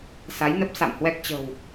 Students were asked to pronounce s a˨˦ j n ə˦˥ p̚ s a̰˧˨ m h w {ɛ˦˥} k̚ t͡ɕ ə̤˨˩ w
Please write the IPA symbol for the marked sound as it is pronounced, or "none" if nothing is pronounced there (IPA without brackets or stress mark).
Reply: ɛ˦˥